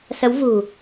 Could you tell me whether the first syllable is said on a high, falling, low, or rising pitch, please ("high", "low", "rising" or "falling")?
rising